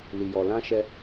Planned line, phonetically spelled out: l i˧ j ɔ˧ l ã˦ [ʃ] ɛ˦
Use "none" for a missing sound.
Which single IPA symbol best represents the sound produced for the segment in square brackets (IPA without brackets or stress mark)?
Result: ʃ